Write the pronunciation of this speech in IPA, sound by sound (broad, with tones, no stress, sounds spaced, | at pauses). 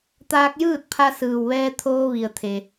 t̪ aː˧ k̚ j ɯː˥˨ t̚ pʰ a˧ s ɯː˩ w ʋ ɛː˧ t̪ʰ oː˧ ʋ i˩ ə̯ t̪ʰ e˩